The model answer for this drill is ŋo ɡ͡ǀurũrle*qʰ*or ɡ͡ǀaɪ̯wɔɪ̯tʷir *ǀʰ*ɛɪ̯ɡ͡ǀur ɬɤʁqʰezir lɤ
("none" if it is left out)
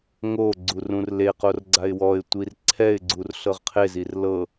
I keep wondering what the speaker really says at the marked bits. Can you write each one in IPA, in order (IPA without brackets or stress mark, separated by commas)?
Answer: q, ǀʰ